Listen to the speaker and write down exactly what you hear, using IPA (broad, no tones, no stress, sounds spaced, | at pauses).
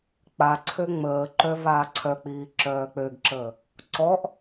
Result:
k͡p a ǀʰ ø ŋ͡m əː ǃ œ v aː ǀʰ œ k͡p iː ǁ œː k͡p ø ɡ ǁ əː | ǀ ɔ ʔ